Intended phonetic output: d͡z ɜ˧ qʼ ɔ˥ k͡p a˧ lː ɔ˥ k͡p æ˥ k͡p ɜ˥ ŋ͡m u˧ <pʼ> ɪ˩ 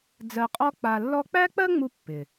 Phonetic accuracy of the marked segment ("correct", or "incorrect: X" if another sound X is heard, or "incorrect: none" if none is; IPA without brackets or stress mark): incorrect: pː